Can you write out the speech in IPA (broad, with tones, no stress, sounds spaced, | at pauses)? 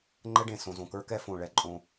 ŋ͡ǃ ɛ˦ ɖ ẽ˨ s õ˨ z õ˨ k ə˞˦ k ɛ˦ f õ˨ ɭ ɛ˨ ǃʼ õ˦